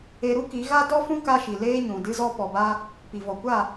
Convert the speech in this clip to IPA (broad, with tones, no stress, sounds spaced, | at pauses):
e˧ ɾ u˦ k i˨˦ ɣ a˦ d ɔ˦ f ũ˦ k a˧ ʃ i˨ l eː˦ ɲ ũ˨ d ɨ˧ z ɔ˧ p ɔ˨ b aː˧ | p i˨ v ɔ˨ kʷ aː˦˨